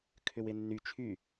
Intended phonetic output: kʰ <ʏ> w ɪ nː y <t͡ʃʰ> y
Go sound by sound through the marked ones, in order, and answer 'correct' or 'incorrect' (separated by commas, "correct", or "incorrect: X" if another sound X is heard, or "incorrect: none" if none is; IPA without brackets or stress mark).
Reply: correct, correct